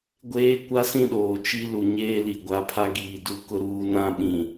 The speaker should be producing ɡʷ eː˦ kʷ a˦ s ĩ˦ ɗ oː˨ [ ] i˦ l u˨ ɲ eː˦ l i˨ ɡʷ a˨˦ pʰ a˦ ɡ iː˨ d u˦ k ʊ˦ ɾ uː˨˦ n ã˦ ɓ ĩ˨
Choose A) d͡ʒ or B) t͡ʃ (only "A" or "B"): B